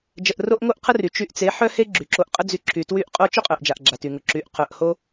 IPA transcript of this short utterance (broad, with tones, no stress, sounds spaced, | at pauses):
d͡ʒ ə˧ ʔ r o˦ ʔ ŋ o˦ ʔ qʰ ə˦ r y˨ t͡ʃ y˧ ʔ t͡s e˨˦ ħ œ˦ h e˦ ɡ͡ǁ y˨ ǁ o˧ ʔ qʼ ə˦ d͡z y˧ ǁʰ y˨ t w y˧ ʔ qʼ o˦ t͡ʃ ʊ˦ qʼ œ˨ ʔ d͡ʒ a˨ ʔ ɡ͡ǁ a˨ t y˨ ŋ ʊ˨ ǁ y˨˦ ʔ qʰ œ˨ ʔ h o˦